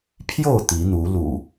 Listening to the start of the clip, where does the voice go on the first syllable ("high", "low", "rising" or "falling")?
falling